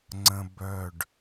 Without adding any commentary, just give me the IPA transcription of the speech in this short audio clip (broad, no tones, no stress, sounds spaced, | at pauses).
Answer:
ŋ͡ǀ ə̃ b œ ɖ